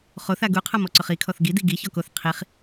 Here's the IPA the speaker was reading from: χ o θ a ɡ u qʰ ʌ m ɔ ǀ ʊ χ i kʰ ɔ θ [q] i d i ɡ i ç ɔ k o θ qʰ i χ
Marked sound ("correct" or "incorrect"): incorrect